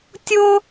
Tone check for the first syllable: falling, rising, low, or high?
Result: high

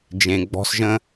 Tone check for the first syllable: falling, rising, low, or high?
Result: low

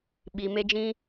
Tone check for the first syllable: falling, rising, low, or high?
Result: low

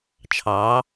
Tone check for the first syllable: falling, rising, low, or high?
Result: rising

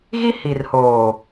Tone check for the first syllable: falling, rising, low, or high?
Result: high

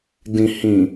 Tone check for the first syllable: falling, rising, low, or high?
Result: low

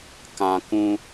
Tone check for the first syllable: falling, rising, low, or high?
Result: high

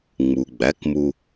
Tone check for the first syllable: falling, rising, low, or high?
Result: low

